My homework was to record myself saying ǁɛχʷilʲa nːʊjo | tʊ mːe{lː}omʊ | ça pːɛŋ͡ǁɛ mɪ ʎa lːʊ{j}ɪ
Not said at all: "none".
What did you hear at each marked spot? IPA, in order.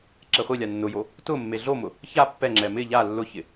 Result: ɮ, ç

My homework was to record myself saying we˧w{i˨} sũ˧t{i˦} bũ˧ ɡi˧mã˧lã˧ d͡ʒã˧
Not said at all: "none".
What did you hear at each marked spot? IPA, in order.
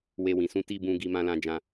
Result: ĩ˨, i˦

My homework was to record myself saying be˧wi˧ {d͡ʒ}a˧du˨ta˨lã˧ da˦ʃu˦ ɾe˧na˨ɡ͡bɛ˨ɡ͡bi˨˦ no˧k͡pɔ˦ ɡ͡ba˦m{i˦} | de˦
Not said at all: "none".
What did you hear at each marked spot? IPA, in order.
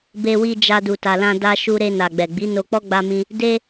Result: d͡ʒ, ĩ˦

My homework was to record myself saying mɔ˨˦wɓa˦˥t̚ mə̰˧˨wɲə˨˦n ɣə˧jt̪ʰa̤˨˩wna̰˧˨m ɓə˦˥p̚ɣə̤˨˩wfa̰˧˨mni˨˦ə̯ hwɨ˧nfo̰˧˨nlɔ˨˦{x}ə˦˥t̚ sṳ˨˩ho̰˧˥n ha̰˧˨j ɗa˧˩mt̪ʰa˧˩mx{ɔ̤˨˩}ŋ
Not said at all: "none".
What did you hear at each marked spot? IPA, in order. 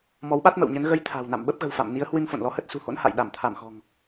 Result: h, ɔ̤˨˩

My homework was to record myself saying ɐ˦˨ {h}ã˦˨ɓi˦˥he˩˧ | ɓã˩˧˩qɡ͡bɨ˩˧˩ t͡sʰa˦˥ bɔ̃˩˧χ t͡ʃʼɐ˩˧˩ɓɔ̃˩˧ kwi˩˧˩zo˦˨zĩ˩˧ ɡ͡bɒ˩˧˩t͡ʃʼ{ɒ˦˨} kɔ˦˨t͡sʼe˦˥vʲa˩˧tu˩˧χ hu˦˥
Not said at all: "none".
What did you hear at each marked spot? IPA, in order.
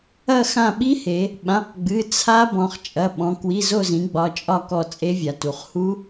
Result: x, ɒ˦˨

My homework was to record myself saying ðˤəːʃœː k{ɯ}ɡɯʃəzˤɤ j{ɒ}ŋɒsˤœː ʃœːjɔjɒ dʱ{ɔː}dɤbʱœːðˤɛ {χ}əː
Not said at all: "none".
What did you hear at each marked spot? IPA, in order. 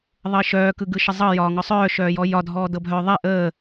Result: ɯ, ɒː, ɔː, ʔ

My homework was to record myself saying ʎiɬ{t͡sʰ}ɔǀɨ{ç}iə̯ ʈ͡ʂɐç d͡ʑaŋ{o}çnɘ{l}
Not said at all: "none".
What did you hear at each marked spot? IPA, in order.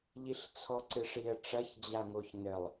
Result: t͡sʰ, ʂ, o, lˠ

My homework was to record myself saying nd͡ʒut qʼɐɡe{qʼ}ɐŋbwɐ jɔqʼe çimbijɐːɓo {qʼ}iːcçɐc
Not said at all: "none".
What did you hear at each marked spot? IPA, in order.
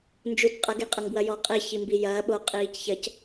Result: qʼ, qʼ

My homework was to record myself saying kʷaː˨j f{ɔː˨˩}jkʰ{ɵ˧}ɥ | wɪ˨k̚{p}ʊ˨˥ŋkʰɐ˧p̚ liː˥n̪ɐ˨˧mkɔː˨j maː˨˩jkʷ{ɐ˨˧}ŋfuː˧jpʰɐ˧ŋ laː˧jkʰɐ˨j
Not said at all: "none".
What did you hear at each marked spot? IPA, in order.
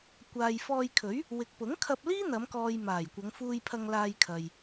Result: ɔː˧, ɵ˨˥, p, ɐ˨˧

